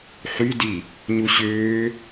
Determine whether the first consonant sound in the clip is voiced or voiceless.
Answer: voiceless